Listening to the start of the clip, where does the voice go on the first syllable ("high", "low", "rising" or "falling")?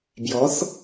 rising